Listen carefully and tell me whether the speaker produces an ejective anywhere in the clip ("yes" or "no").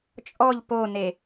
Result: yes